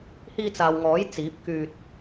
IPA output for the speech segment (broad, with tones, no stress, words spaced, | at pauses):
hiː˧t͡saː˨w ŋɔː˨˥j t͡siː˨˥p̚kyː˧t̚